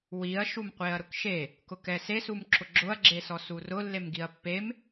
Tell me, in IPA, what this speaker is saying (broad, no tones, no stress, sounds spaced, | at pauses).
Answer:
w i ɐ̯ ʃ u m qʷ e ɐ̯ ɾ ʊ k ʃ e | k ʊ k ɛ s e s u m ǁ ʊ ɡ͡ǁ ʊ ɐ̯ ɡ͡ǁ e s ɔ s u r ʊ lː e m ɡ i ɐ̯ pː e m